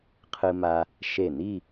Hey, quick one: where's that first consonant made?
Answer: uvula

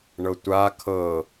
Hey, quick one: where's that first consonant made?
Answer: retroflex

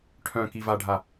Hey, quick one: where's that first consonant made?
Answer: retroflex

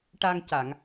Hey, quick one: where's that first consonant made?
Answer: retroflex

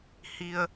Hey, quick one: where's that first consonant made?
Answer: throat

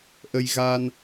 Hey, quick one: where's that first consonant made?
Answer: throat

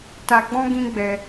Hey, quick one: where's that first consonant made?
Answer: tongue tip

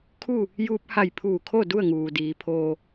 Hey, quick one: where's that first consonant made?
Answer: velum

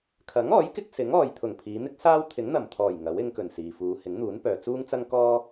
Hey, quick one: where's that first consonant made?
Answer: velum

